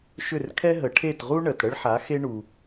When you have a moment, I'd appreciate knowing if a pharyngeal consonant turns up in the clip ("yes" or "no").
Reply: yes